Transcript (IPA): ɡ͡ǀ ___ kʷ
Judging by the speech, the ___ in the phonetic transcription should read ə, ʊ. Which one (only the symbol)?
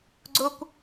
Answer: ʊ